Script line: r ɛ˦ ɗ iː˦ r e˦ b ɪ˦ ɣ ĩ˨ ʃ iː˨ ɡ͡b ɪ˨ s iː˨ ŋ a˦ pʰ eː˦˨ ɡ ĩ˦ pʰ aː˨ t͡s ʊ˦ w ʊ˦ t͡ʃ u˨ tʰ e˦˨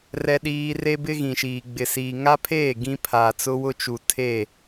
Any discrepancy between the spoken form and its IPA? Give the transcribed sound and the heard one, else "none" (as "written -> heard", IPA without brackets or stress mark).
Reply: none